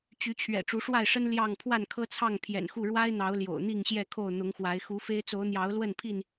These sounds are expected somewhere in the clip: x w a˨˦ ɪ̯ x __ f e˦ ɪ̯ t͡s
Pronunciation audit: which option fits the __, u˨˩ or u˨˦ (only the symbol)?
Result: u˨˦